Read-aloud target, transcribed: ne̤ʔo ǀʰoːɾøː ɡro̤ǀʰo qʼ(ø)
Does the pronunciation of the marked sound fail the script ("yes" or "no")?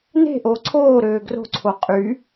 yes